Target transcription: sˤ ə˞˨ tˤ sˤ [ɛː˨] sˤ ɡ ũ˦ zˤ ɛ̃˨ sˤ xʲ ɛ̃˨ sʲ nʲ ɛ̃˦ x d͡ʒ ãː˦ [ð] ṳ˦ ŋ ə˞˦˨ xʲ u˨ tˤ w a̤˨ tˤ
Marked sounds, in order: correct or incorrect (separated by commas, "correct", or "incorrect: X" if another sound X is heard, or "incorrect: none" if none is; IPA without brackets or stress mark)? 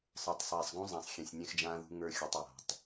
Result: correct, correct